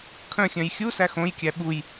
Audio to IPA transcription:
kʰ œ̃ xʲ œ̃ j xʲ u s æ x õ j kʲ æ ɓ u j

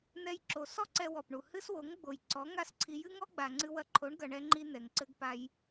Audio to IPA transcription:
n̪ ɛ˧ j ǁ o˨ s ɔ˦ ǀ ɛ˧ w ɔ˨ p ɳ u˨ h ɨ˦ s w o˨˦ ŋ ɡ͡b o˨ j ǀ ɔ˨˦ ŋ a˦ s ǀʰ i˧ j ɨ˦ ŋ ɔ˦ ɡ͡b a˨ ŋ͡ǀ ɨ˧ w ɐ˧ ǃʰ o˨˦ ɳ ɡ ɐ˨ ɳ ɛ˧ ŋ͡ǃ i˧ n̪ ɛ˨ ŋ ǀ ɘ˦ ɡ p a˦ j

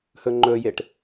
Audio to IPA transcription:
h ɵ ŋ͡ǃ ɵ j e ʈ

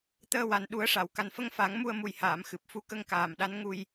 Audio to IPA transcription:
t̪ əː˧ w a˨˩ n ɗ u˨˩˦ ə̯ ʂ a˨˩˨ w k a˨˩ n f ə˧ ŋ f a˨˩˦ ŋ m u˧ ə̯ m u˨˩ j h aː˨˩˨ m x ɨ˨˩ p̚ f u˧ k ə˧ ŋ k aː˨˩ m ɗ a˧˥ n ŋ u˧ j

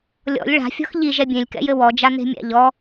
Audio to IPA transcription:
lʲ ɔ̰ lʲ ɭ a̤ fʲ ɔ̤ x ʎ i ʒ ɛ bʲ ẽ lʲ k ɛ̰ j ɘ w ɔ d͡ʒ a n̪ e̤ mʲ a̰ ʎ ɔ

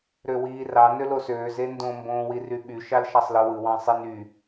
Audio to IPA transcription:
ɾ ø w iː r ɑ n ø l o s øː z e n d õ m b õː w i r y ɓ y ʃ ɑ l ʃ ɑ sˤ l ɯ w ɯ w ɑ̃ sˤ i n y

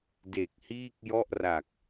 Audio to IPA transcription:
d e˨˩ k̚ h iː˥˩ k̚ j ɔ˥˩ ʔ r a˨˩ k̚

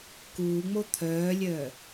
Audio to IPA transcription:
k uː ŋ͡m o t̪ʰ œː lʲ œː

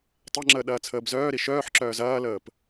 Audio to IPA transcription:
tˤ e ŋ͡ǁ əː ɗ ɐː t͡sʰ əː b z œː ɾ i ʃ œː ħ ǁ œː z ɐː l əː p

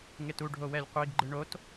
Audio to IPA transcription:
ŋ e t u ɖʱ o w ɛ lʲ qʷ i ɡ ɡ͡ǃ ɯ ɳ o t

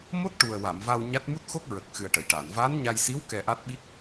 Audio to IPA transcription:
m o˦˥ t̚ ʈ u˨˩ ə̯ w a˨˩˨ m v a˧ w ɲ a˦˥ t̚ m u˦˥ t̚ x o˦˥ k̚ ɹ ə˨˩ k̚ x ɨ˨˩ ə̯ ʈ ə˨˩˨ j ʈ aː˨˩˨ n v a˧˥ n ɲ a˧ j s i˧˥ w k ɛ˧ ʔ a˦˥ t̚ ɓ i˦˥ k̚

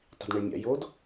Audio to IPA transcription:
tˤ i̤ d ɳ i ɭ mʲ a̰ j o d

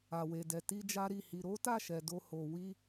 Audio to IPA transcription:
a˨ w e˨ d ɛ˨ t i˧ d͡ʒ a˦ ɾ i˦˨ h i˧ ɾ o˦ t a˦˨ ʃ ɛ˨ d o˧ h o˨ w i˧

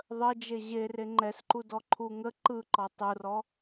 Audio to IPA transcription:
ðˤ ə d͡ʒ e ʑ e r e ŋ͡ǃ ɛ s ǃ u d ɔ ǃʰ u ŋ ə ǃ ɯ ǃ ɔ tˤ u r ɔ

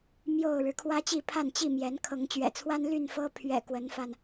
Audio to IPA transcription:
m j o˥˨ ʊ̯ ɻ ɻ̩˨˦ kʰ w ä˦ t͡ɕ i˥˨ pʰ a˥˨ n t͡ɕ i˥˨ m j ɛ˨˦ n kʰ ɤ˨˦ ŋ t͡ɕ ɥ ɛ̰˨˩ t͡sʰ w a˦ n l y˥˨ n f ɤ˦ pʰ ɥ ɛ̰˨˩ k w ə˨˦ n f a˧ n

